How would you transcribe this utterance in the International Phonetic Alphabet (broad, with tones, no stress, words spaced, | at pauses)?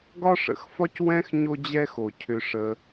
ɡɒ˥ʂə̰˨xfɒ˥cwɛ̃˥x ɲo˦d͡ʑɛ˦xo˩ cʰʏ˨ʂə˨